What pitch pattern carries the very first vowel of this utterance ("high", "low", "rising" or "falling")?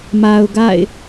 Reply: low